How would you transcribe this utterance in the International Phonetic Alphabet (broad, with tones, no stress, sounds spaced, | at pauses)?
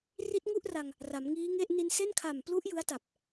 r i˦˥ t̚ ŋ u˥˩ ʔ r a˧ ŋ | r a˩˦ m ŋ iː˦˥ ŋ e˥˩ ʔ n i˧ n s e˥˩ n kʰ a˨˩ m p l u˦˥ ʔ j ɯ˦˥ a̯ t a˨˩ p̚